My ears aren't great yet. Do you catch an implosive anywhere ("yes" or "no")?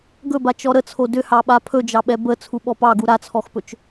yes